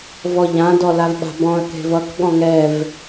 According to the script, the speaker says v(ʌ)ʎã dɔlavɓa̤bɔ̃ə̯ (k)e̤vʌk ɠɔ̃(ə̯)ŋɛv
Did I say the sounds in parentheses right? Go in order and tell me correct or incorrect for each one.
incorrect, correct, incorrect

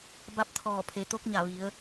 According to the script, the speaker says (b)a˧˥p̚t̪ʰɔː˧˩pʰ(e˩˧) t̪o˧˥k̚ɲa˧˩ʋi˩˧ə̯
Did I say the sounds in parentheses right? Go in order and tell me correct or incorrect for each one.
correct, correct

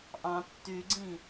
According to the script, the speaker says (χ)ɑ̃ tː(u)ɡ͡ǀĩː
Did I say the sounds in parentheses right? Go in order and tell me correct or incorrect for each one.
incorrect, incorrect

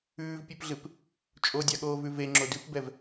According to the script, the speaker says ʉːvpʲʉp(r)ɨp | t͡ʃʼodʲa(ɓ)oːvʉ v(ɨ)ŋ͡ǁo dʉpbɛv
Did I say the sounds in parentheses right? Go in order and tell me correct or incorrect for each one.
incorrect, incorrect, incorrect

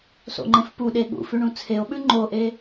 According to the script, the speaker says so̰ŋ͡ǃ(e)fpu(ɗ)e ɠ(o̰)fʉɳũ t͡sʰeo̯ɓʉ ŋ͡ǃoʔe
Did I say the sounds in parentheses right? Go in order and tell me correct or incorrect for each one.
incorrect, correct, incorrect

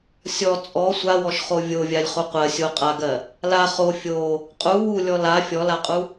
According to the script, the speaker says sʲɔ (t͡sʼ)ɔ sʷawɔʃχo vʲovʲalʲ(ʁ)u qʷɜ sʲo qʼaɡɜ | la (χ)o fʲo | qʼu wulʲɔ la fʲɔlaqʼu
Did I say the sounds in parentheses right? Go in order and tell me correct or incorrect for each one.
correct, incorrect, correct

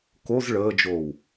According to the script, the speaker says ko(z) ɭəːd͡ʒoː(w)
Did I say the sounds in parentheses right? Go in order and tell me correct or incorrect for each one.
correct, correct

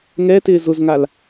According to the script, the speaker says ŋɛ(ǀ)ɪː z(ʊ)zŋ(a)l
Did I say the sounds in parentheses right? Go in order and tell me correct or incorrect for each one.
incorrect, correct, correct

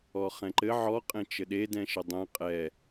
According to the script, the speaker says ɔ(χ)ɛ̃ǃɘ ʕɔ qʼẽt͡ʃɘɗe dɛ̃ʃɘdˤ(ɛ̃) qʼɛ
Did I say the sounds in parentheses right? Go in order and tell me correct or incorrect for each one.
correct, correct

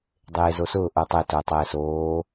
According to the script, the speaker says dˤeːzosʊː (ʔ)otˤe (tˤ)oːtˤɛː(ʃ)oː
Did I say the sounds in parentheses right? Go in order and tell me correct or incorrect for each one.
correct, incorrect, incorrect

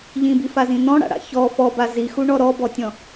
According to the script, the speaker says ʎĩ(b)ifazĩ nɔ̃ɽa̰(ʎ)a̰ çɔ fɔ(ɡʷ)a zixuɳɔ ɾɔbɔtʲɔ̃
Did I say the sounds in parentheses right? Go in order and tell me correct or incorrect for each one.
correct, incorrect, incorrect

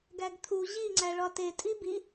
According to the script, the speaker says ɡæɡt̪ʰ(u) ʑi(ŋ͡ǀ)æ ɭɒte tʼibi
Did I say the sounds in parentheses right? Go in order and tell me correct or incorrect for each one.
correct, correct

